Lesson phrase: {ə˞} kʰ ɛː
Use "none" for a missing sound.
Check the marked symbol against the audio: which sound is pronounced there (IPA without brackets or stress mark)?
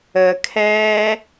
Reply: ə